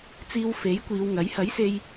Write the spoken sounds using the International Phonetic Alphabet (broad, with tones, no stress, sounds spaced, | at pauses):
t͡s iː˧ w f e˨˥ j kʷ iː˨˧ w ŋ ɐ˨˥ j h ɐ˨˥ j s e˧ j